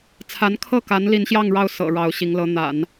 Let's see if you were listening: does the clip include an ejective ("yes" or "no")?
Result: no